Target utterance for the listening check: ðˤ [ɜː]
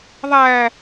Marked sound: incorrect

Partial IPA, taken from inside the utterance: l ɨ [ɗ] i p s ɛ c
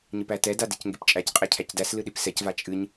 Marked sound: correct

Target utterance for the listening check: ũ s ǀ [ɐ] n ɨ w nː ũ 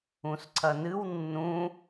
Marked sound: correct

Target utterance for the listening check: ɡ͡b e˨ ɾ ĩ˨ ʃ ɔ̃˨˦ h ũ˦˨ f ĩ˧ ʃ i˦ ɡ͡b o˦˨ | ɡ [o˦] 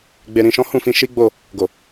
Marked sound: incorrect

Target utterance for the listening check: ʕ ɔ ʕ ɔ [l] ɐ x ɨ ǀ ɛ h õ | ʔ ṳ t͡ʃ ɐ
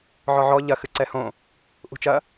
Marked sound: incorrect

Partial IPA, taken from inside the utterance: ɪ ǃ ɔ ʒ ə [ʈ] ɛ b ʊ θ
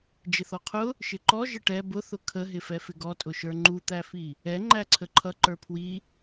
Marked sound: correct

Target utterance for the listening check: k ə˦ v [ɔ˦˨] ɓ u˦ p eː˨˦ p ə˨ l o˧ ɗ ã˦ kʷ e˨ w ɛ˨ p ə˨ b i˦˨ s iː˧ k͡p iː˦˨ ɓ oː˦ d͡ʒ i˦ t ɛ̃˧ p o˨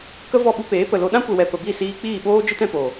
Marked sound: correct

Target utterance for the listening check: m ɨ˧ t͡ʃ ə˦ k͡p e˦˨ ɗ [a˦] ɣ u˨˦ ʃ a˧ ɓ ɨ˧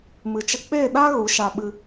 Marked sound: correct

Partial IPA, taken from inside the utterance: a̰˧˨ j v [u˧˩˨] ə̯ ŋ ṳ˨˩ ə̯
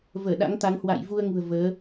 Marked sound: incorrect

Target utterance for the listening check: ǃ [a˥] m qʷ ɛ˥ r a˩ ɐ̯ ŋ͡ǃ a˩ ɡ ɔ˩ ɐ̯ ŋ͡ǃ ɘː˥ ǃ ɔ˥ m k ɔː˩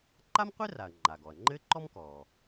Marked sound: correct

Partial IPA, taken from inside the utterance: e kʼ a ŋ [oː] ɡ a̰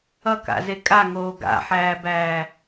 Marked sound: correct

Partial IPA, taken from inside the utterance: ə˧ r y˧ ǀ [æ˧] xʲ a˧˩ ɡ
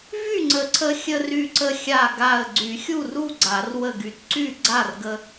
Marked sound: incorrect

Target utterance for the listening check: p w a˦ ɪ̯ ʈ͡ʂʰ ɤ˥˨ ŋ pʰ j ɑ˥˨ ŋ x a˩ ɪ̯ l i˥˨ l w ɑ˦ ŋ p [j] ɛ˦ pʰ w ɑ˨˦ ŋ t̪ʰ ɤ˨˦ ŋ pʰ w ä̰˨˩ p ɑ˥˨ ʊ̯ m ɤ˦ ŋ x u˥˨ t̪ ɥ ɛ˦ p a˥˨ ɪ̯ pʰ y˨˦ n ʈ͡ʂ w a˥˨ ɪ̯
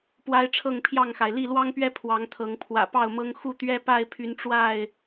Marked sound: incorrect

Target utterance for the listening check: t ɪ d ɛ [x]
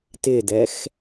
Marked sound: correct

